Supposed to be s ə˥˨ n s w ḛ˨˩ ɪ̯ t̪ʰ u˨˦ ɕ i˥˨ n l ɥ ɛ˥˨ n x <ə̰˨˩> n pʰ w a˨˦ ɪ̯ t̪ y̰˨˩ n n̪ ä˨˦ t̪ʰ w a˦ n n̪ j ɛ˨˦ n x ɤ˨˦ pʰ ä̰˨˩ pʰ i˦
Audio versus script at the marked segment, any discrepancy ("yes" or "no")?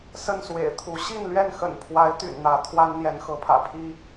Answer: no